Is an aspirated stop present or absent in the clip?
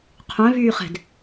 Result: present